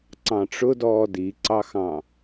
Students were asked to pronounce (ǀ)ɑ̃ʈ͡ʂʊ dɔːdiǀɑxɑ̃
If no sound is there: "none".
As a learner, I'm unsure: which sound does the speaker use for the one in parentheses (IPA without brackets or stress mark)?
ǀ